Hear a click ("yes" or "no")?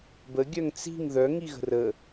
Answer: no